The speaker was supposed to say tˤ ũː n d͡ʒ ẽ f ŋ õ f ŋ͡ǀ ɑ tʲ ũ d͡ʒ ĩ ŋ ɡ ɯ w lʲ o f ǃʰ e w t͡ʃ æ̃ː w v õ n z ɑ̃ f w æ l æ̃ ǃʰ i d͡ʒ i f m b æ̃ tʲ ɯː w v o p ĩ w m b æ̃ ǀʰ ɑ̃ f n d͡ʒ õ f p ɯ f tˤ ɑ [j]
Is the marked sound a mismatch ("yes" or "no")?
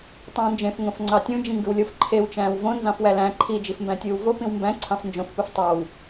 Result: yes